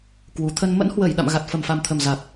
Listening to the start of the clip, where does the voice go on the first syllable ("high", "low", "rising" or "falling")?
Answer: low